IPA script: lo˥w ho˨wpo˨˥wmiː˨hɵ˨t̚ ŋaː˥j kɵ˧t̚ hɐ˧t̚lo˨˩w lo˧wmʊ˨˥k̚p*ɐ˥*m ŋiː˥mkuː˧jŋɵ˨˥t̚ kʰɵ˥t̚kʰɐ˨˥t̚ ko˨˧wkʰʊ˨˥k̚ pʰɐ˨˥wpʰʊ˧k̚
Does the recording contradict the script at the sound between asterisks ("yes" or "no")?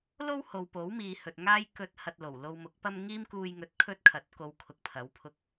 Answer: no